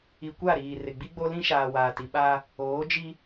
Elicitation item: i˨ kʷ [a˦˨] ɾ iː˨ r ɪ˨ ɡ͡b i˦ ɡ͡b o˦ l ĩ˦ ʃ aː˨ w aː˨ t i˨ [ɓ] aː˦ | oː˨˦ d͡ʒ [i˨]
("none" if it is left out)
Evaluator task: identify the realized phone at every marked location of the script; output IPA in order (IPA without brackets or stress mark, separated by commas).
a˦˨, ɓ, i˦